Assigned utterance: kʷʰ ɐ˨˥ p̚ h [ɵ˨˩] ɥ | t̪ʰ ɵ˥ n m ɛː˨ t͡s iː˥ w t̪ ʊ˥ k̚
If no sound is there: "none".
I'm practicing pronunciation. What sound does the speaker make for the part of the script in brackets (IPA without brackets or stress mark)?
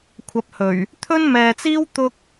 ɵ˨˩